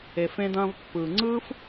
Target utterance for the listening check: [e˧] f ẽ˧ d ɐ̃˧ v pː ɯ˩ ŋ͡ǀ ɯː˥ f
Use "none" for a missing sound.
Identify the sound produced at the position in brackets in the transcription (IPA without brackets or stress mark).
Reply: e˩